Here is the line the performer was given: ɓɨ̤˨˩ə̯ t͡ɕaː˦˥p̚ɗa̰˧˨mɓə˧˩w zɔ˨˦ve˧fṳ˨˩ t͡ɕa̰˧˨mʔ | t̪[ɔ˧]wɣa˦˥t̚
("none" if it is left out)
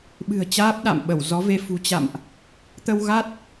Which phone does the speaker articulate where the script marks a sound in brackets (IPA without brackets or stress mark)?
ə˧